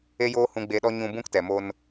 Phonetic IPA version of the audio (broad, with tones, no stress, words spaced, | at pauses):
e˦joː˦ hũ˧ɡ͡be˧ɗɔ˦ ɲũ˧ bũ˦ktɛ˨mo˧n